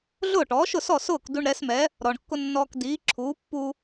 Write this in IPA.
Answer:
ɮ ʊː˥˩ ʈ ɔː˩˥ ʃ ʊ˥˩ s ɔ˥˩ s ʊː˥˩ k d u˧ ɳ ɾ ɛ˩˥ s m ɛ˩˥ | ɾ ɔ˩ ɳ kː ʊ˧ nː ɔː˧ k d iː˩˥ ǁʰ uː˩˥ pː u˧

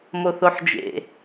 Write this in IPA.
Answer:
m o θ o ħ d͡ʒ ḛ

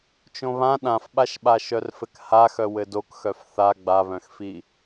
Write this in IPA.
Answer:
t͡ʃ õ β ã ɗ ã f ɓ a ʃ ɓ a ʃ œ r f ɘ k h a x œ w ɘ d o k x œ f θ a ɡ͡b a β œ̃ x f i

